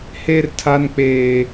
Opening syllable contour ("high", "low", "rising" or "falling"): high